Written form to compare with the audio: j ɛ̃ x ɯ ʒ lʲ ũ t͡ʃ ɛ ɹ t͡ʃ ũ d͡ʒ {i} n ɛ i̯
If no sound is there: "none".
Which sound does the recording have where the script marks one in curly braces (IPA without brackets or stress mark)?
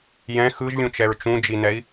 i